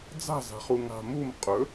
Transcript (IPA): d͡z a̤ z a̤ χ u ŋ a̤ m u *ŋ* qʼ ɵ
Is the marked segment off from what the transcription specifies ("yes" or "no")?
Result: yes